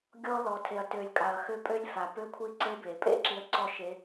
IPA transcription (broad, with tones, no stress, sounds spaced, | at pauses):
ɡʲ ɔ˧ l ɔ˩ tʰ e˩ ɐ̯ t ø˩ lʲ kʼ a˩ ɐ̯ x ø˧ pʼ ø˧˥ lʲ f a˩ p ø˧˥ kʷʰ i˧˥ ǀ e˧˥ b e˩ pʼ ḛ˥ ǁ i˧˥ ɐ̯ ǀ ɔ˥ ʃ e˧˥